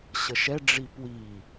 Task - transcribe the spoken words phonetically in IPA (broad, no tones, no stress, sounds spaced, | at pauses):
ɕ ə ʃ ɛ ɖ͡ʐ i p w i